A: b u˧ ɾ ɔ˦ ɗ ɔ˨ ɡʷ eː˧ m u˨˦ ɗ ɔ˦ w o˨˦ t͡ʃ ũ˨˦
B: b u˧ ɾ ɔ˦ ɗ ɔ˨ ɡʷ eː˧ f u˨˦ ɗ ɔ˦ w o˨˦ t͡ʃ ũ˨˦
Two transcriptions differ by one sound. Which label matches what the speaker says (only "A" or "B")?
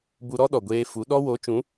B